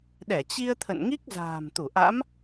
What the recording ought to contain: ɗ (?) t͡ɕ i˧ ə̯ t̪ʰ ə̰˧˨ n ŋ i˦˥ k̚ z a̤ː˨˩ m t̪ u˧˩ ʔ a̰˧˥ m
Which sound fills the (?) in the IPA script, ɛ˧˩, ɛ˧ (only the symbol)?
ɛ˧˩